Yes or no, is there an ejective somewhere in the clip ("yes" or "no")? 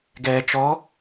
no